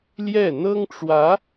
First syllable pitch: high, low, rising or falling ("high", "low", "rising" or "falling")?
falling